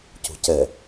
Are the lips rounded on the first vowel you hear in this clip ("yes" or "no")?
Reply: yes